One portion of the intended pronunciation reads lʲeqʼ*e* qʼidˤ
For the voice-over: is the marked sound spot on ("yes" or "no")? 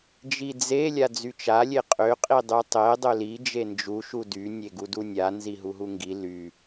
no